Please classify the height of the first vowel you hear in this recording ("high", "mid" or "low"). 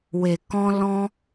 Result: mid